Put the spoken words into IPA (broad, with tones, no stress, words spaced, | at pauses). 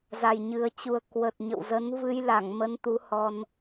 za˨˩jɲɨ˨˩ə̯t͡ɕu˨˩ə̯ kwə˨˩t̚ɲə̰˧˨w zə˨˦n vɨ˧jla˧˩ŋmə˨˦n t̪u˨˦hɔ˧n